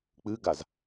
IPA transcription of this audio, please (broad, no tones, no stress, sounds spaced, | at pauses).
k͡p ɨ ɡ a z